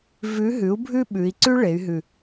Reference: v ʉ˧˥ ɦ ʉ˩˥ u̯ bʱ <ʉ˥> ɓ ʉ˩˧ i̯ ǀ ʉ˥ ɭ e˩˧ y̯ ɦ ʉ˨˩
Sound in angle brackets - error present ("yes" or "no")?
no